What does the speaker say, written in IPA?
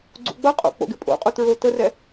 ɡ͡ǀ ṵ ɡ͡b ʌ qʼ o̰ k͡p o̰ ɡ ɪ pʼ o̰ qʼ u t ɹ o t ə r ɛ

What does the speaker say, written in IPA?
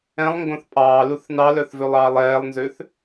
ɛ̃ lˠ ŋ ɡ õ θ pʼ ɑː l u θ n ɑ l œ θ v ø lˠ ɑː lˠ ɛː lˠ n z ø θ

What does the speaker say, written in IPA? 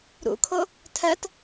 ɾ ṵ kʰ o | tʰ ɜ t

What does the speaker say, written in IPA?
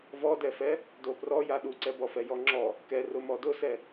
v ɔ d ɛ f ɛ | d o p r ɔ j a ɗ u ǀ ɛ b ɔ f ɛ j ɔ ŋ͡ǁ ɔ | k ɛ r ʊ m ɔ d ʊ s ɛ

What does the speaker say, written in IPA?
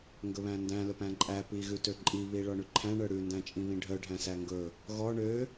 ŋ ɡ ɵ β æ̃ n d æ̃ l ɵ p æ̃ ǃʼ æ p i ɣ ʉ t ø ǃʼ i β i ɭ ɔ ɳ ʉ ǃʰ æ̃ ɳ œ ɽ ʉ n d æ̃ t͡ʃʼ ĩ β ĩ ɖʱ œ ɖʱ æ̃ s æ ŋ ɡ ɵ | ɣ ɔ ɳ ø

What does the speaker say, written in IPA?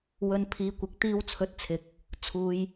w ɵ˨ n pʰ iː˨ kʷ ɪ˨˥ k̚ t̪ iː˧ w t͡sʰ ɵ˨˥ t̚ t͡sʰ ɪ˨ k̚ | t͡sʰ uː˨ j

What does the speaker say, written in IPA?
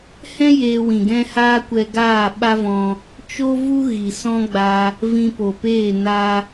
h ɛ̃˦ j eː˧ w ĩ˨ ɡ ɛ̃˦ h aː˦ kʷ ɛ˧ ɡ aː˦˨ ɓ a˦ v ɔ̃˧ | t͡ʃ o˦ v u˦ ɣ i˨ s ɔ̃˦ ɡ͡b a˧ | v ĩ˧ p o˨ p eː˦˨ n a˧

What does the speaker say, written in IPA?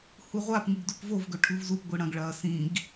h u ʁʷ a p ŋ ɨ ɡ d u p v o v ɡ ɵ ʈʰ ʉ v z u p ɡʷ ɨ ɽ ɐ̃ ɡ ɭ ɐː s ĩ ɡ

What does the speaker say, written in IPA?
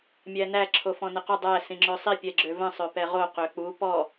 mʲ æ n æ ǁʰ o f ɔ̃ n ə q ʏ dˤ æ s ĩ ŋ͡ǁ ø sˤ i pʲ ɛ ɡ͡ǁ ø v ə̃ sˤ ø p ɛ ʁ o q ø k͡p u p ɔ

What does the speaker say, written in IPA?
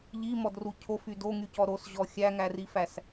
ʎ i m ɔ d r u cʰ o f y d o ŋ y c ɔ ɾ o s ʑ ɔ xʲ æ ŋ æ r i f æ s

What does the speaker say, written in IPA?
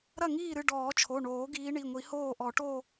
ɾ ɐ˥˩ ŋ iː˥˩ ɾ ɨ˥˩ ɖ ɔː˨˩˦ t͡ʃʰ o˩˧˩ ɳ oː˨˩˦ ɡ iː˨˦ ɳ i˩˧˩ ŋʷ i˨˩˦ h oː˥˩ ʔ ɔ˨˩˦ ʈ o˥˧

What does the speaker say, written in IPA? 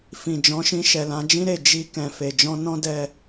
f ĩ˨ d͡ʒ ɔ̃˨˦ ʃ ĩ˧ ʃ ɛ˨ l ã˨˦ d͡ʒ ĩ˦ ɾ e˦˨ d͡ʒ i˧ k ɛ̃˨ f e˨ d͡ʒ ɔ̃˧ n ɔ̃˦ d ɛ˧

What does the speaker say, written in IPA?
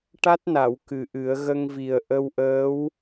ʈ a˦˥ t̚ n a˨˩˨ w k ɨ˨˩ ʔ ɨ˨˩˦ ə̯ ɣ ə˧ ŋ v i˨˩ ə̯ ʔ ə˧ w ʔ əː˧˥ w

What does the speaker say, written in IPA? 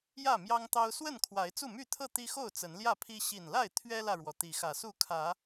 j ä˥˨ m j ɑ˦ ŋ t̪ ɑ˦ ʊ̯ s w ə˥˨ n kʰ w a˨˦ ɪ̯ t͡s u˥˨ m y˥˨ t̪ʰ ɤ˥˨ t̪ i˦ x o˥˨ ʊ̯ t͡s ə˨˦ n l j ä˥˨ pʰ i˦ ɕ i˨˩ n l a˥˨ ɪ̯ t̪ʰ ɥ ɛ˦ l ä˨ ɻ w ɔ˩ t̪ i˨˦ x ä˨˩ s u˥˨ kʰ ä˨˦

